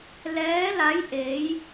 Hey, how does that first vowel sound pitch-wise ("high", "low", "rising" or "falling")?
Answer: rising